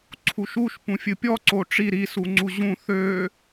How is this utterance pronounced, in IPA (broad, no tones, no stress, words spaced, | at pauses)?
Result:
ǀʰuʃuʃ pũfʲɨpʲɔ ǀoʈ͡ʂi ɾi suŋ͡ǀuʑũ θø